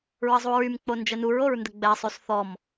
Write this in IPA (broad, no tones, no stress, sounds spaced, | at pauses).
ɹ ə zˤ u ɹ y m k͡p o n d͡ʒ ə n u ɹ o ɹ n d ə ɡ͡b ɛ sˤ y s θ ɔ m